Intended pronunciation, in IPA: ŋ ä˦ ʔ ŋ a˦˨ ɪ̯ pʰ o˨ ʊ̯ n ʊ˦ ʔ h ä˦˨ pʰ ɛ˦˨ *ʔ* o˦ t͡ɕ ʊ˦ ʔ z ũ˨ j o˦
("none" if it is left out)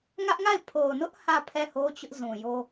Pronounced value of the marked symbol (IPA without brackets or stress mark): h